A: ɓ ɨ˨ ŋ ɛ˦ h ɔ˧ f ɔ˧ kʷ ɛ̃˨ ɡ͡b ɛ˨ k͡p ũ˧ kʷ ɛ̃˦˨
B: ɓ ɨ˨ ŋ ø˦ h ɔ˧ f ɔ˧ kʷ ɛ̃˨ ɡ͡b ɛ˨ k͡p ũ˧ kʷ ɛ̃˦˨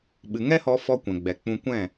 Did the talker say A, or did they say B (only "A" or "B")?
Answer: A